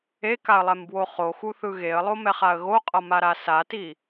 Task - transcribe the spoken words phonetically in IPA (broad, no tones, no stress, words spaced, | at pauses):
ekaə̯lˠɛmbwo χoxuθɯ ɣeə̯lˠomɛχaə̯ ɣoqʼʌmaɾa sati